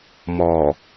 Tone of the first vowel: low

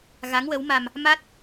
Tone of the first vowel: rising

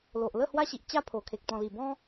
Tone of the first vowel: low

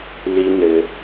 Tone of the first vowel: high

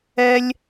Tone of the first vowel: high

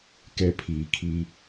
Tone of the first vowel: high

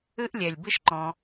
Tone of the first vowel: high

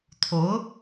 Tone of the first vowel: rising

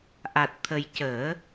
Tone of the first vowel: low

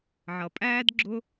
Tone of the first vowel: low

